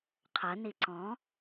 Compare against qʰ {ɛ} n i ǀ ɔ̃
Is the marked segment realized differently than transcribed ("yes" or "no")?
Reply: yes